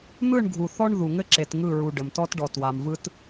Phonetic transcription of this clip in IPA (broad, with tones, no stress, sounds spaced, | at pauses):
n̪ ɯ˦˨ ɳ ɡʱ u˨ θ ɔ˦ ɳ ð u˨ ŋ ɘ˦ ǁ e˨ t ŋ ɯ˦˨ ɹ u˨ ɖ ɘ˨ m t ɔ˦ t ɖ ɔ˨ t w a˨ m v ɯ˦ t